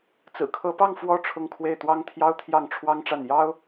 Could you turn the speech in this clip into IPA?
t͡s ɹ̩˨˩ kʰ ɤ˧˥ p ɑ˥˩ ŋ f w ɔ˥ ʈ͡ʂʰ ʊ˥˧ ŋ kʰ w e˥˩ ɪ̯ t̪ w ɑ˥ ŋ t̪ʰ j ɑ˥ ʊ̯ t̪ʰ j ɑ˥˩ ŋ ʈ͡ʂʰ w ɑ˥ ŋ ʈ͡ʂ a˥˩ n j ɑ˥ ʊ̯

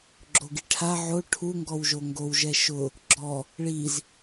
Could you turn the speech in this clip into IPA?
ɡ͡ǁ o ɡ i ʈʰ a ʕ o ʈʰ u ŋ ɡ ɔ w ʒ o ŋ ɡ o w ʒ ɛ ʃ ʊ | ɡ͡ǁ ɔ | ɭ i z

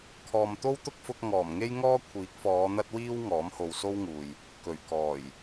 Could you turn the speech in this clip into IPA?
kʰ ɔː˨ m t̪ o˥ w t̪ ʊ˥ k̚ f ʊ˧ k̚ ŋ ɔː˨˩ m ŋ e˥ j ŋ ɔː˥ kʷʰ iː˨˥ k̚ f ɔː˨˧ n̪ ɐ˥ t̚ w iː˥ w ŋ ɔː˨˥ m h o˨ w s o˥ w ŋ uː˨ j | k ɵ˨˩ ɥ k ɔː˨˩ j

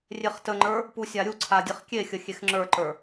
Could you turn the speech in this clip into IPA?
rʲ e χ t ə ŋ͡ǃ ə˞ | p u sʲ a ɾʲ u ǀʰ a dʲ e χ kʲ e xʲ ə xʲ e x ŋ͡ǁ ə˞ ǃ ə˞

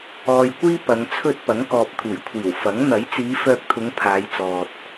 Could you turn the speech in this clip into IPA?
ɔː˨ j kʷ iː˥ p ɐ˨˧ ŋ t͡sʰ ɵ˥ t̚ p ɐ˨˥ ŋ k ɔː˨ p̚ t̪ʰ uː˨˩ j kʷʰ iː˨˩ w f ɐ˨˥ ŋ n̪ ɐ˨˥ j t͡s iː˨˧ f œː˧ k̚ t̪ʰ ʊ˨˧ ŋ pʰ aː˨˧ j t͡s ɔː˨ t̚

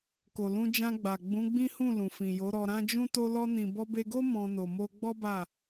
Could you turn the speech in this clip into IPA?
k o˨ l ũ˧ d͡ʒ ã˧ ɡ͡b a˨ ɡ͡b ũ˨˦ ɡ͡b ĩ˦ h ũ˦˨ l ũ˨ f ĩ˨ j o˨˦ ɾ ɔ˧ ɾ ã˦ d͡ʒ ũ˦ t o˧ l ɔ˧ n ĩ˨ b ɔ˧ b e˧ ɡ o˦ m ɔ̃˧ n o˨ m o˧ ɡ͡b ɔ˦ b a˦˨

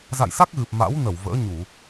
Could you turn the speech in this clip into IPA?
z a̰˧˨ j s a˦˥ k̚ ɣ ɨ˨˩ p̚ m a̰˧˥ w n ə˧˩ w v ə̰ː˧˥ ɲ u˧˩˨

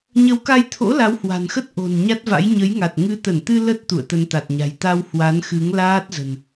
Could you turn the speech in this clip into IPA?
ɲ ə˨˦ w k a˧ j t̪ʰ o̰˧˥ l a˨˦ w h w a̤˨˩ n x ə˦˥ t̚ ʔ o̤˨˩ n ɲ a˦˥ t̚ v a̰˧˥ j ɲ ə˨˦ j ŋ a˨˩ t̚ ŋ ɨ˨˦ t̪ ə˧˩ n t̪ ɨ˧ l ə˦˥ t̚ t̪ ṵ˧˨ ə̯ t̪ ə˧ n t̪ a˨˩ t̚ ɲ a̤˨˩ j t̪ a˧ w h w a˨˦ n x ɨ˨˦ ŋ l aː˦˥ t̚ z ə̤˨˩ n

